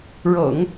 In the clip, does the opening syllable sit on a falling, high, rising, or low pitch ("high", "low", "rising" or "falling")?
low